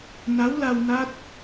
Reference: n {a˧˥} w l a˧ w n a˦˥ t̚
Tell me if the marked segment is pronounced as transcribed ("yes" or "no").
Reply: yes